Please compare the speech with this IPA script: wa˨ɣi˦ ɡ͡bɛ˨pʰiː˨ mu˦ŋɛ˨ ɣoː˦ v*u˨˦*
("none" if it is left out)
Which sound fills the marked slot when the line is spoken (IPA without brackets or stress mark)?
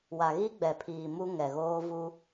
u˦